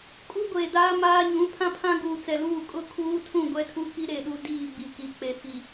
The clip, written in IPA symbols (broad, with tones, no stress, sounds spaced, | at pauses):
kʼ u˦ ɡʷ eː˨ d aː˦ m aː˦ ɲ ũ˨˦ pʰ ã˦ pʰ ã˦ ɡ uː˨ t͡s ɛ˨ l uː˦˨ kʼ ʊ˦ kʰ uː˦ tʰ ũ˦˨ ɡʷ ɛ˦ tʰ u˦ k i˦ ɾ e˦˨ ɗ u˦ d iː˦˨ ɡ͡b i˨ k i˨ k͡p e˨ f i˨